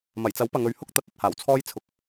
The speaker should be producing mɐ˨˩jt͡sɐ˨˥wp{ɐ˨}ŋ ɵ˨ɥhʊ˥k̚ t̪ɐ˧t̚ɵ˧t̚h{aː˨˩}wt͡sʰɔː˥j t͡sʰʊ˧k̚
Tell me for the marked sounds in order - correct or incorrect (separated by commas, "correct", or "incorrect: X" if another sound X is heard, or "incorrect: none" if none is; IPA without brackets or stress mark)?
correct, correct